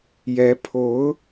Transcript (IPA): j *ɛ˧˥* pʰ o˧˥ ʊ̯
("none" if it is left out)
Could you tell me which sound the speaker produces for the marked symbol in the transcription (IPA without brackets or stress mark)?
ɛ˧˥